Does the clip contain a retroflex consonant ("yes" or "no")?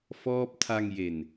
no